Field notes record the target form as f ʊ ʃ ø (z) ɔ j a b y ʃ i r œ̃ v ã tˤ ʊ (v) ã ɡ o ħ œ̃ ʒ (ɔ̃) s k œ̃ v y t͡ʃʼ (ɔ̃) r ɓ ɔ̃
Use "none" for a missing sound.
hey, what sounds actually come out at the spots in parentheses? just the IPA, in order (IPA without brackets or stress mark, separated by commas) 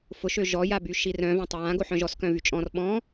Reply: ʒ, w, ɔ, ɔ̃